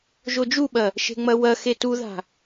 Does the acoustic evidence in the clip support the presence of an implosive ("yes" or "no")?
yes